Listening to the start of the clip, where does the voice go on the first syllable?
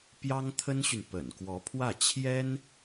high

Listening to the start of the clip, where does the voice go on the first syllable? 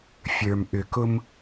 low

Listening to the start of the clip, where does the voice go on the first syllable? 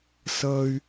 high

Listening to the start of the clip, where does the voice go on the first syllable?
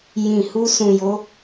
low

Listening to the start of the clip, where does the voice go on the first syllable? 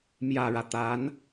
low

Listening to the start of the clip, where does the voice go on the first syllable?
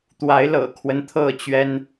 rising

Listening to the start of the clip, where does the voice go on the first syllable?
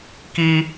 high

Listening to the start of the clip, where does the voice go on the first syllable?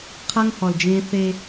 high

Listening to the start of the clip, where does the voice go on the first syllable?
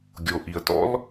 low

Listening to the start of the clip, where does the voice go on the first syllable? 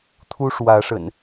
high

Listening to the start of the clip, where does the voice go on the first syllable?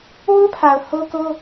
high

